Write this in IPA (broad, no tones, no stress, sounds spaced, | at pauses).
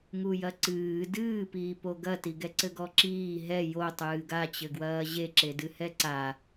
ŋ u j ɐ ǀ ɨː d ɨː p iː p o ɡ ɐ t i ɡ ɛ ǀ ɘ ɡ ɔ ǁ iː ɦ ɛ j o tˤ ɨː ɡ a t͡ɕ ɘ ɡ w ɐː ʑ e ǁ e d ɨ h ɛ ǀ a